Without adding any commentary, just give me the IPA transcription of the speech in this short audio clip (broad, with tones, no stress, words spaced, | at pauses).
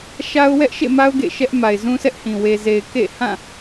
ʃa˦ʊ̯wɛ˦ʔʃḛ˦˨ma˦ʊ̯ ɡḛ˦˨ ʃɛ˦ʔ ma˨ɪ̯zũ˦sɛ˦ʔhĩ˨ we˨ze˨ɪ̯ kḛ˦˨ hã˦˨